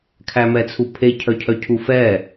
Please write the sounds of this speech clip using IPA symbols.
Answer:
kʰ æ m ɛ t͡sʰ u pʰ e cʰ œ cʰ œ cʰ u f ɛ

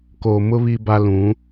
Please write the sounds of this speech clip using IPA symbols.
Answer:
k oː˨ m ʊ˦ β i˦ b a˦ l ũ˨˦

